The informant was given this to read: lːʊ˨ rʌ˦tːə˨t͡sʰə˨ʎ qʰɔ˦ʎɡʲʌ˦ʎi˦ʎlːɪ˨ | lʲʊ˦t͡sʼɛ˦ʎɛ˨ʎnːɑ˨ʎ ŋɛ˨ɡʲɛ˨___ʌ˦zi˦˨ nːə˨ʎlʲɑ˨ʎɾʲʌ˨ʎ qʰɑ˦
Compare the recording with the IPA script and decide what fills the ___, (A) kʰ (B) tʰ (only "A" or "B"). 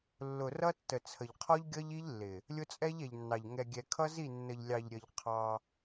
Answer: A